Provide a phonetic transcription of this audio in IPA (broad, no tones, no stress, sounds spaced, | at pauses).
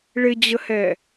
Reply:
ɭ ɪ d͡ʑ ə h ɛ